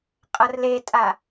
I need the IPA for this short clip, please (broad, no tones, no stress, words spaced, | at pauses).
qʼʌrletʼa